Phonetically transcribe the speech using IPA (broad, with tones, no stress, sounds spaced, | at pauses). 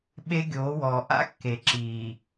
ɓ e˦ ɡʲ oː˨˦ w ɔː˨ ʔ a̰˦ kː e˨ ǁ iː˨